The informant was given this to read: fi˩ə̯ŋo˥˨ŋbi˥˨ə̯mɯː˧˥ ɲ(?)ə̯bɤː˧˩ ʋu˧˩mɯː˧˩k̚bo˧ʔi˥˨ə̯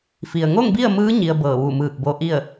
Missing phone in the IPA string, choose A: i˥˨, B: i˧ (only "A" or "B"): B